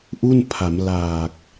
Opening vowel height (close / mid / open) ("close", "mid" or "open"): close